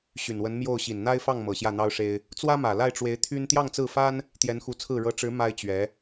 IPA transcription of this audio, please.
ɕ y˨˩ n w ə˧˥ n m j o˥˩ ʊ̯ ɕ i˨˩ n n̪ a˥ ɪ̯ f ɑ˥˩ ŋ m ɤ˨˩ ɕ j ä˥˩ n̪ ɑ˥ ʊ̯ ʂ e˥ ɪ̯ | t͡s w ä˥ m ä˨˩ l a˥˩ ɪ̯ ʈ͡ʂ w e˧˥ ɪ̯ t̪ʰ y˥ n t̪ j ɑ˥˧ ŋ t͡s ɹ̩˥˩ f a˥ n | t̪ j ɛ˧˥ n x u˧˥ t͡sʰ ɹ̩˥˩ ɻ ɤ˧˥ ʈ͡ʂ ɻ̩˧˥ m a˥ ɪ̯ t͡ɕ ɥ ɛ˧˥

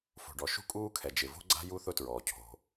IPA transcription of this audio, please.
f o̤˩ ɖ ɔ˩ ʃ ṳ˥ kʼ uː˥ kʰ ɛ˩ d͡ʒ ɪ˩ v o̤˥ ɡ͡ǀ a̤˥ j u˥ θ ʊ˥ t ɹ ɔː˩ cʰ o̤˩

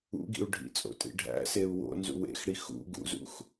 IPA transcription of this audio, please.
ṵ ɡ ḭ u̯ ɖʱ ḭ t͡sʼ o̰ tʼ ḭ ɖʱ æ̰ s e u̯ w o̰ n z ṵ w ḛ x ɽ i x ṵ ɡ ṵ z ṵ x

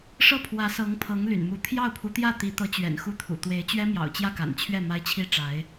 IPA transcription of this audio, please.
ʂ ɤ˥˩ pʰ w ä˧˥ s ɤ˧˥ ŋ pʰ ɤ˧˥ ŋ l y̰˨˩ n m u˧˥ t̪ʰ j ɑ˥˩ ʊ̯ pʰ u˧˥ t̪ j ä˥˩ t̪ i˧˥ t̪ ɤ˧˥ t͡ɕ ɥ ɛ̰˨˩ n x u˥˩ t̪ʰ ṵ˨˩ t̪ w e˧˥ ɪ̯ t͡ɕ ɥ ɛ˥ m j ɑ̰˨˩ ʊ̯ t͡ɕ j ä˥˩ k a̰˨˩ n t͡ɕʰ ɥ ɛ˥˩ m a˥ ɪ̯ t͡ɕʰ i˥ ʈ͡ʂ a˧˥ ɪ̯

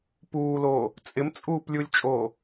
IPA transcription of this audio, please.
p uː l oː | t͡sʼ ɪ m t͡sʼ uː p lʲ u lʲ t͡ʃʼ oː

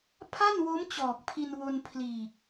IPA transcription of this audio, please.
pʰ a˥˩ n w o˦˥ m t͡ɕ ɔː˨˩ k̚ pʰ i˧ n w o˧ n pʰ l iː˨˩ k̚

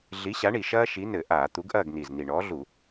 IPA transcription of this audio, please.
ɮ i˨˥ ɕ a˨˥ ɳ i˨˩ ʃ ɐː˦ ʃ i˨˥ n ɘ˧˩˧ ʔ aː˧˩˧ t̪ u˨˥ ɡ ʔ ɐː˥˨ ɡ n i˨˩ z n i˨˩ ɳ ɔː˨˥ ɮ u˧˩˧

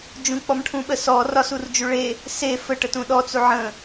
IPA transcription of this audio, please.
d͡ʒ ũ k͡p ɔ m ʈʰ ũ ɓ ə s ɔ r ɒ s u r d͡ʒ u ɭ e | s e f ə ʈ ə t ũ ɗ ɔ t͡s u ʕ ə̃

